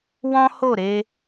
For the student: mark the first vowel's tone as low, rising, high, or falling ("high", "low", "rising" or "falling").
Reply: high